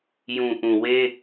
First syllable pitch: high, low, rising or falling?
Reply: low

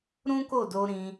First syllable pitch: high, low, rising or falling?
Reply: high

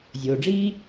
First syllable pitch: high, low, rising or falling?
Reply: low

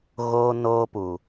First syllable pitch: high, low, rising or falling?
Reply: high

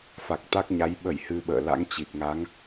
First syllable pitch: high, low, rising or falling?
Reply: low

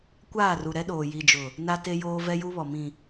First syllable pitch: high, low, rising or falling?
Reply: falling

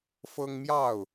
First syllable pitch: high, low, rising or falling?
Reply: high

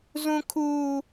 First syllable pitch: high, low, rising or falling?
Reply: high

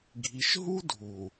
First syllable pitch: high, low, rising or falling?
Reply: low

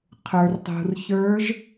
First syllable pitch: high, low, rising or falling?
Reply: low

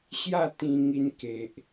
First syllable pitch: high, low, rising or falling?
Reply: falling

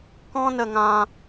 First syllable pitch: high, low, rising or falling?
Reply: high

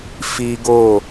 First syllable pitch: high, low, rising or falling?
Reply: high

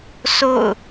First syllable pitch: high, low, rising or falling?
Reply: falling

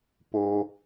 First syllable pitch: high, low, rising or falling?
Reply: low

